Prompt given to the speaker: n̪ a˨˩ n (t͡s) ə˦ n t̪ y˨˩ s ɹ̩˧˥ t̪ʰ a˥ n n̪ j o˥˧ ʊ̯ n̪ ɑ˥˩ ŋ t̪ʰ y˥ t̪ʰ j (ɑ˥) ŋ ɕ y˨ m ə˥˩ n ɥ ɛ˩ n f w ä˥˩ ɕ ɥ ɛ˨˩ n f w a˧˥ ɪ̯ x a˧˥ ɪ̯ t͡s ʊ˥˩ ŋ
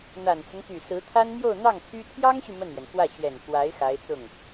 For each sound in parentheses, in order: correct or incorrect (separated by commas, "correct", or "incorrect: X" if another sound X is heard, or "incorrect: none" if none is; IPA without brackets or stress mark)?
correct, correct